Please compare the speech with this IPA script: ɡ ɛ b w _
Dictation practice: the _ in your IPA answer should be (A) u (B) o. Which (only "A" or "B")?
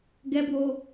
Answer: B